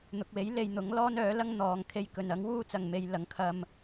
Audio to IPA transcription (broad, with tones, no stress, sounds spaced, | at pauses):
n̪ ʊ˨ k̚ w e˨˥ j l e˧ j n̪ ʊ˨˥ ŋ l ɔː˥ n œː˨˥ l ɐ˥ ŋ n̪ ɔː˨ ŋ kʰ e˧ j k ɵ˨ n ɐ˨˥ ŋ w uː˥ t͡s ɐ˨ ŋ m e˧ j l ɐ˨˥ ŋ kʰ ɐ˧ m